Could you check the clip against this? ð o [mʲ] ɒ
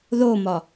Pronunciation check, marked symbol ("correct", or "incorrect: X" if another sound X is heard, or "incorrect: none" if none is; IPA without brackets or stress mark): incorrect: m